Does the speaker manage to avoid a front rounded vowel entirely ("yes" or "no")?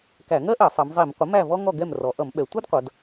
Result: yes